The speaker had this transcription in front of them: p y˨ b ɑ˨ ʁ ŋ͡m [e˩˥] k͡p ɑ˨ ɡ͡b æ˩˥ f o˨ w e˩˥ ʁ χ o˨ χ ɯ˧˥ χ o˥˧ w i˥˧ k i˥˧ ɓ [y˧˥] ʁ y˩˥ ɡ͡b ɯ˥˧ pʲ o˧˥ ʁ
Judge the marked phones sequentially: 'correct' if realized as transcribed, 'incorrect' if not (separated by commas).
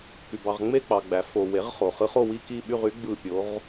incorrect, incorrect